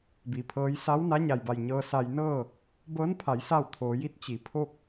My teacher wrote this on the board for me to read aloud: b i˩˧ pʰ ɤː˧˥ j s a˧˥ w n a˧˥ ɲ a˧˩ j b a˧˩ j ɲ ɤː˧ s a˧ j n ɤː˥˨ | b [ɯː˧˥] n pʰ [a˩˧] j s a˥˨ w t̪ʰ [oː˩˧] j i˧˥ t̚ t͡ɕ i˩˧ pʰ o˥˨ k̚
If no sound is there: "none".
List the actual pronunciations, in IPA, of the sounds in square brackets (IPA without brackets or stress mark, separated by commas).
ɤː˧˥, a˩˧, oː˩˧